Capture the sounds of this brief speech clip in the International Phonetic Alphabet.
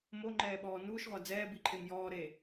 m o ŋ͡ǃ ɛː ɓ ɔː n uː ʃ ʁʷ a d͡z ɛː b i ǃʰ e m j ɔː ɾ eː

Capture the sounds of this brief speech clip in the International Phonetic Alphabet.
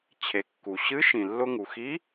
t͡ɕʰ e˩˧ kː u˩ ɕ ɨ˧˥ ʃ ĩ˩ lː ʊ˧ ŋ u˩ x i˧˥

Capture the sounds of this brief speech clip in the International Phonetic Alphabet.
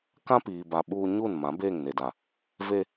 k ã˦ p iː˨ b a˨ ɓ uː˦ ɲ uː˦˨ n m ã˨˦ b eː˦˨ ŋ n e˨ d a˨ | v e˦

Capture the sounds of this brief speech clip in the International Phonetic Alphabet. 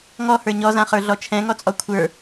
ŋ ɔ h ə˞ ɲ ɔ z ã χ ə˞ ɮ ɔ t͡ʃʰ ɛ̃ ŋ ɔ t͡sʼ ɔ kʷʰ ə˞

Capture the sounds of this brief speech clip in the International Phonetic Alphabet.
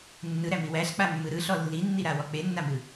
nː ɯ ɾ æ m i w æ ɬ k͡p a mː ɯ ɾ ɯ ɬ ɔ lː i nː i ɾ a w ɔ k͡p e nː a m ɯ

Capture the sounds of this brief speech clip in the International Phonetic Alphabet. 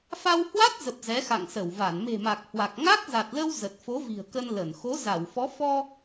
f a˧ w h w a˦˥ t̚ z ə˨˩ p̚ z ɛ˨˦ x a̰˧˨ ŋ s ə˧˩ w v a˧˩ n m e̤˨˩ m a˨˩ k̚ h w a˨˩ k̚ ŋ a˦˥ k̚ z a˨˩ t̚ l ə˧ w z ə˨˩ t̚ f o˨˦ v i̤˨˩ ə̯ k ə˧ n l ə˧˩ n x o˨˦ z a˧˩ w f ɔ˨˦ f ɔ˧

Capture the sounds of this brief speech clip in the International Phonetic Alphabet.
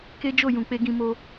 k e˦ d͡ʒ o˦˨ j ũ˨ k͡p e˧ ɡ ĩ˧ m o˧

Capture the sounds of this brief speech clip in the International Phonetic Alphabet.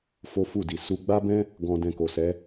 f o˦ f u˦˨ d i˨ s u˧ ɡ͡b a˦ b ɛ̃˦ | ɡ ɔ̃˧ d ɛ̃˧ k o˨ s ɛ˨˦

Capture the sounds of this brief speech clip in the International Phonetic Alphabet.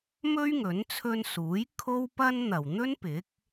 m ɵ˥ ɥ ŋ ɵ˨˥ n t͡sʰ ɵ˧ n s uː˨˥ j kʰ o˥ w p ɐ˥ n n̪ ɐ˨ w n̪ ɵ˥ n p ɪ˨˥ k̚

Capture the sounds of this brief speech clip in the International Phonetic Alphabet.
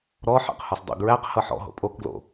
ɾ ɔ ħ æ̰ q h ɔ s dˤ o̰ ɡ ɹ æ q h ʌ ħ ɔ̰ ɦ o̰ pʼ o k ɡ l o̰

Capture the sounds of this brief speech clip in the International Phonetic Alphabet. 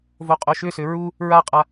v o qʼ o ʃ ʏ s ʏ ɹ u | ɹ a qʼ a

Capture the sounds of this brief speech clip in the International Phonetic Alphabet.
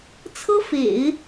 t͡sʰ ɤ˥ f ḛ˨˩˦ ɪ̯

